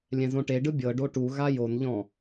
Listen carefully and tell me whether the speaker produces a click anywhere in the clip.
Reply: no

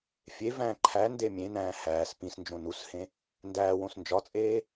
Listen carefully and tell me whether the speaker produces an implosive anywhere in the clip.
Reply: no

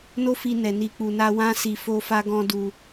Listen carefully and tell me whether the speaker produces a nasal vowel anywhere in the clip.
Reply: yes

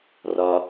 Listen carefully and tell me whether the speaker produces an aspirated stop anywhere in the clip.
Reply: no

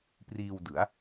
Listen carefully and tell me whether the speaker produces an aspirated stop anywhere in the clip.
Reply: no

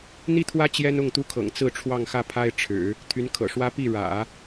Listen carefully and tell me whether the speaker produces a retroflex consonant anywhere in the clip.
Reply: yes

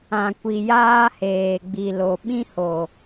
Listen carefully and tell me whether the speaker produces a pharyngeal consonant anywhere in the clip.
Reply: no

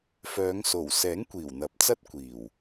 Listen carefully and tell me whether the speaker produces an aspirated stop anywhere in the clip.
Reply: no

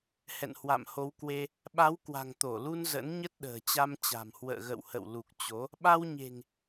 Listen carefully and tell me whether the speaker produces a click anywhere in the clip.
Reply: no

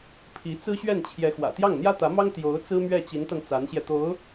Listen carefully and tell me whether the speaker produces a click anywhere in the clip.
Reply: no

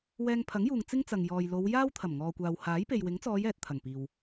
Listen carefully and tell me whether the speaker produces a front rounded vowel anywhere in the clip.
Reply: no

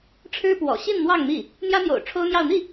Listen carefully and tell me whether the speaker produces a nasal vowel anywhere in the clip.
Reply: no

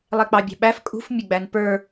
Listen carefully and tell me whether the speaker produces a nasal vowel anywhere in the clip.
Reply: no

